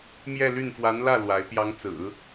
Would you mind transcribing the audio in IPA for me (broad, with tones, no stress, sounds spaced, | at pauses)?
m j ɛ˥˧ l y˥˩ n f w a˧˥ n l ä˥˩ l w a˧˥ ɪ̯ p j ɑ˧˥ ŋ t͡s ɹ̩˨˩˦